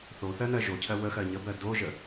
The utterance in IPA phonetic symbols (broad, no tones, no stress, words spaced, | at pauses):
θoθɜnɜ ʒocʰɜ wəxɜ ɲəbɜ doʒə